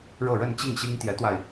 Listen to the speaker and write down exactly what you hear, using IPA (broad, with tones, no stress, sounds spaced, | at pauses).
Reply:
ɻ ɤ˥˧ ɻ ə˥˧ n t͡ɕ i˥˩ ŋ ɕ i˥ ŋ t̪ j ɛ˧˥ t̪ w a˧ ɪ̯